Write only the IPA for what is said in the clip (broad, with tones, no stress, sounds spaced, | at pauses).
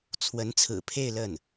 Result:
t͡sʰ w ə˧˥ n t͡sʰ ɹ̩˨˩ pʰ e˥˧ ɪ̯ l ə˥˩ n